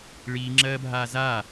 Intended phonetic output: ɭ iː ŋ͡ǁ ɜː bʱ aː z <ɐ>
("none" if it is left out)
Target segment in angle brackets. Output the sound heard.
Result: a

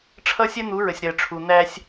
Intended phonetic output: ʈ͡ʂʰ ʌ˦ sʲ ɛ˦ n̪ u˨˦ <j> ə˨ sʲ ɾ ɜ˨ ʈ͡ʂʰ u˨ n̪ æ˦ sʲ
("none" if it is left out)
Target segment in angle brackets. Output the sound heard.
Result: ɹ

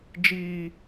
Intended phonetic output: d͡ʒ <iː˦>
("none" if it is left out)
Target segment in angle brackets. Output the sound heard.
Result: iː˦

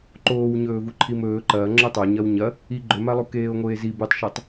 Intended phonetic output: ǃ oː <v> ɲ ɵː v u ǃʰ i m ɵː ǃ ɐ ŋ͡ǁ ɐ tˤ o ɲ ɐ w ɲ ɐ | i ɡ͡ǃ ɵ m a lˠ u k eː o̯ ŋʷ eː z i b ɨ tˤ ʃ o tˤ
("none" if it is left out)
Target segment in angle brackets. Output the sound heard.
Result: w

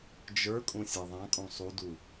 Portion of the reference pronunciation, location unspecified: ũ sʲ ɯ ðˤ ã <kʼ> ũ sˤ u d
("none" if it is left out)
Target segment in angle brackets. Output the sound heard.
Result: kʼ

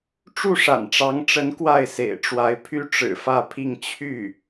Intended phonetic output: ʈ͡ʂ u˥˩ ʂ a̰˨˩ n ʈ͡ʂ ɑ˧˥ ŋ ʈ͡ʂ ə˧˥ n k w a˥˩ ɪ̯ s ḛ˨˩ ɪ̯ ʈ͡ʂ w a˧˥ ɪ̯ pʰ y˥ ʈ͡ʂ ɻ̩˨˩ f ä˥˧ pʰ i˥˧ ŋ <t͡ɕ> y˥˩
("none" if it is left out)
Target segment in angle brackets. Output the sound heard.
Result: t͡ɕʰ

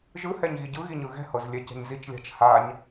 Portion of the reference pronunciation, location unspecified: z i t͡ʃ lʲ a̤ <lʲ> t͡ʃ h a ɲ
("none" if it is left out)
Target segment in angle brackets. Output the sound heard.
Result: none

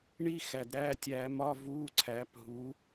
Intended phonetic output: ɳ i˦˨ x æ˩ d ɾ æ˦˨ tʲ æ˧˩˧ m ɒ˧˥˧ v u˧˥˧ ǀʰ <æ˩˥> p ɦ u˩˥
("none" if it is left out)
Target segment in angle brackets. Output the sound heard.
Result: æ˩˥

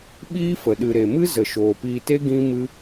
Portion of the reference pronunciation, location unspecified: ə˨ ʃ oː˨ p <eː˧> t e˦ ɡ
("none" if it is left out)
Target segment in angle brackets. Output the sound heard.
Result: iː˧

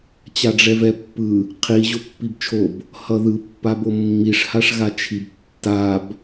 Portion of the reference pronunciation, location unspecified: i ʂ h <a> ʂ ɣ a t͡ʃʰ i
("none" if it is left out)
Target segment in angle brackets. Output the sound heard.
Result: a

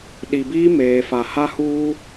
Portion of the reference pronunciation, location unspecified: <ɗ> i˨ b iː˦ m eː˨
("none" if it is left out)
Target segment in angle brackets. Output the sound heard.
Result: ɗ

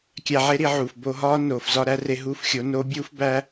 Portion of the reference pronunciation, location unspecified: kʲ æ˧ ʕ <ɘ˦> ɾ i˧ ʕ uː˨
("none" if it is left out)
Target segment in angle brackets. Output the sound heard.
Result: e˦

